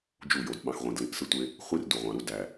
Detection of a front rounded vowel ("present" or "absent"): absent